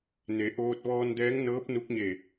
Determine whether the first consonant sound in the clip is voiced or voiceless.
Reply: voiced